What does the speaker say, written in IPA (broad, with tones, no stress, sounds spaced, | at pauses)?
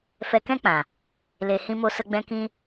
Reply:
f ɛ˧ k ɛ̃˦ k͡p ã˨ | l e˨ h ĩ˦ m o˦ s ə˦ ɡ͡b ɛ̃˦ k ĩ˦